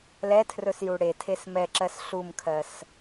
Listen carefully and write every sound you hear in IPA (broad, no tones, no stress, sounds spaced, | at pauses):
l ɛ tʰ r ɵ s j u ɽ e tʰ e s m ɛ ǁ ɜ s ɬ u m kʰ ɜ s